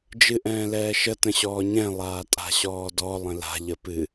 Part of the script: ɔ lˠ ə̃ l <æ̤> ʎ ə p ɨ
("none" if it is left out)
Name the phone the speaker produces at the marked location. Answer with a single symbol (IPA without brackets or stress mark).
a̤